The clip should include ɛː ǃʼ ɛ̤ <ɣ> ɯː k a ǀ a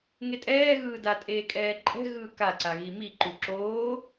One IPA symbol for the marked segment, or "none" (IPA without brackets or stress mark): ɣ